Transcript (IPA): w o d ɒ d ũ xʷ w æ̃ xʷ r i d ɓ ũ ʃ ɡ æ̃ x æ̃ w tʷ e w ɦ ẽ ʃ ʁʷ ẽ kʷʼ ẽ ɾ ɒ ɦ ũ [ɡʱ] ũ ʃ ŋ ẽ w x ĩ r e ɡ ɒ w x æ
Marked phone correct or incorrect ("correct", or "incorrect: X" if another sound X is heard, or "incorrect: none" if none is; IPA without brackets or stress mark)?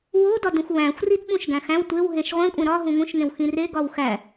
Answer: incorrect: ŋ